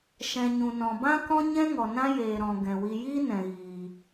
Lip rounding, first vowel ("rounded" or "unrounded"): unrounded